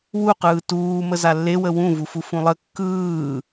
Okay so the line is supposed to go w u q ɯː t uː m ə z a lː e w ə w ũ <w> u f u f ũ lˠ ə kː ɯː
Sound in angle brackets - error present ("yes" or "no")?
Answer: yes